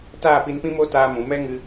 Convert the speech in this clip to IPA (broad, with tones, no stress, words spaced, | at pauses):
taː˦˨pi˧npĩ˦mo˦ taː˦mũ˨˦ mɛ˦ ŋɨ˧